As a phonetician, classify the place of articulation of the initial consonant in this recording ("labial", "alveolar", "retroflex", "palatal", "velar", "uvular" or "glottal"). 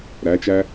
alveolar